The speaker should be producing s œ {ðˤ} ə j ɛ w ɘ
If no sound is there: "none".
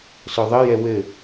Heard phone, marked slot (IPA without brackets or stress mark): ðˤ